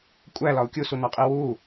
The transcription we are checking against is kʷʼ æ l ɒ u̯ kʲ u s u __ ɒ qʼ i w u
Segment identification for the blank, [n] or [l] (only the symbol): n